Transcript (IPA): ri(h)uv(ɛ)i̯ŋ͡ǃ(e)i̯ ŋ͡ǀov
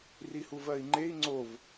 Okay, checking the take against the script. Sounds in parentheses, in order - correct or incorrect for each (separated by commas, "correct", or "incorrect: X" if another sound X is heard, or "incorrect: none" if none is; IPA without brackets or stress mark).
correct, incorrect: ɜ, correct